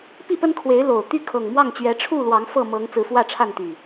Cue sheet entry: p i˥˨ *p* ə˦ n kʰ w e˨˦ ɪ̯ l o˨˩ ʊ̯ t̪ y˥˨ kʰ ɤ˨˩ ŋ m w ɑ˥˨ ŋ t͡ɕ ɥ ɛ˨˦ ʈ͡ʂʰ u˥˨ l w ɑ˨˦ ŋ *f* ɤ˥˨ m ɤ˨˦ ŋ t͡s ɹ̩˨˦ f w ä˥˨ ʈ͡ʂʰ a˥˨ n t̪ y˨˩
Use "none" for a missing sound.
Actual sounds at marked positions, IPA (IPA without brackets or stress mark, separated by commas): p, f